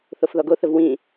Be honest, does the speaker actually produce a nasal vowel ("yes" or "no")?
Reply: yes